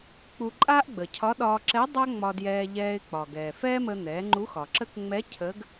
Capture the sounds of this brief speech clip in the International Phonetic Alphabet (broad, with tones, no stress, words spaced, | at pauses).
k͡pu˧ǃʼaː˥ʔɡ͡bə˩cʰɒ˧˥ ɗɒː˧ǁɛ˧˥ dˤa˥ŋ͡mɒ˧djɛː˧ ʎɛː˧ɪ̯k͡pɒ˩ ɡɛː˩fɛː˥mə˧n̪ɛː˩˧ ŋ͡ǃu˧˥xɒ˩ǁə˥k ŋ͡mɛ˧˥ cʰə˧˥ɡ